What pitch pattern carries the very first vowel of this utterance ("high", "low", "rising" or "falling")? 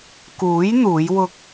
rising